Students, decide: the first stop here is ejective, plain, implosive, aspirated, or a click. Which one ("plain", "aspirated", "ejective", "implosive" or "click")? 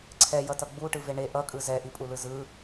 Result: click